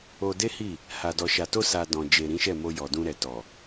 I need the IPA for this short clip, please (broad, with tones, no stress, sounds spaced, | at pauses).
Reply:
o˧ d e˦ h i˦˨ | h a˨ d ɔ˨ ʃ a˨ t o˧ s a˨ d ɔ̃˨ d͡ʒ e˨ ɾ ĩ˨˦ ʃ ɛ˦˨ m o˧ j ɔ˨ d ũ˧ ɾ ɛ˨ t ɔ˨